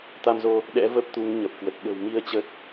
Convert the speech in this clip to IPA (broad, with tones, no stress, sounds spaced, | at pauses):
t̪ a˧ m z o˧ | ɗ ɛ̰˧˥ v ə˦˥ p̚ t̪ u˨˦ ŋ ɲ ə˨˩ p̚ k w ə˨˩ t̚ ɓ ə̤˨˩ w m i˧ ə̯ t͡ɕ ə˦˥ t̚